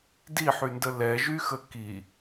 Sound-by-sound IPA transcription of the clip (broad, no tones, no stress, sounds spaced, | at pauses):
d i ħ y n d ə l ɛ ʒ y x ə k i